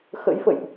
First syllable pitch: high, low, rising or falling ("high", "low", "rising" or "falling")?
rising